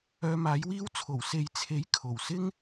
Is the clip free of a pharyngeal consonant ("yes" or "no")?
yes